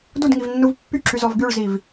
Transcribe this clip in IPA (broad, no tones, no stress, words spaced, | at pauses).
dudŋivnːuv pːyǁyzɔv ɡyɭziv